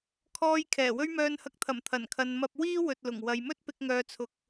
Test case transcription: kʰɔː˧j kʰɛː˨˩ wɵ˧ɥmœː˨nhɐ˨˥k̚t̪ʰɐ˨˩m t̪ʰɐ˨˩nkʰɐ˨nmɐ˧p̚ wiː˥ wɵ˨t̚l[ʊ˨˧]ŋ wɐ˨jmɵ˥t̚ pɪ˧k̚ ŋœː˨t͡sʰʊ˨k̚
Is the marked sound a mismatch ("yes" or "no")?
yes